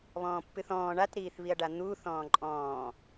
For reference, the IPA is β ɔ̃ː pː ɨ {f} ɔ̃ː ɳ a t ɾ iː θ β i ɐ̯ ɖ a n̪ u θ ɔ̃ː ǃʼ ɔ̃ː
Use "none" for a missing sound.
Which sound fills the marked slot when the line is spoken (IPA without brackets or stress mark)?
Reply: θ